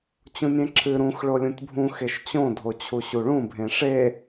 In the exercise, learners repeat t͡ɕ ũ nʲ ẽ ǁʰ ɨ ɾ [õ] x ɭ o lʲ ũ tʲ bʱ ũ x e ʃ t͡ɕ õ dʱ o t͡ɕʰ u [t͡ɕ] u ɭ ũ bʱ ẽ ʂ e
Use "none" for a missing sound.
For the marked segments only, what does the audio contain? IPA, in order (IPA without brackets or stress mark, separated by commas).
ũ, ɕ